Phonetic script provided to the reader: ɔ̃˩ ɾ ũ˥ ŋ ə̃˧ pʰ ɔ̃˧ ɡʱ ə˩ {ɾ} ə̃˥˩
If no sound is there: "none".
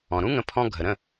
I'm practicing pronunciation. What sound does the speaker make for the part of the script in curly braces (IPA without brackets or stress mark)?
ɾ